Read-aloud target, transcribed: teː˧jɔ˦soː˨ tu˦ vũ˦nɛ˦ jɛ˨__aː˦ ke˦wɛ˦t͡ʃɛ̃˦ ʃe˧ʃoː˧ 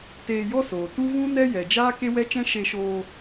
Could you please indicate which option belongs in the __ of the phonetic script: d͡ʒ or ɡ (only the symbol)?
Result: d͡ʒ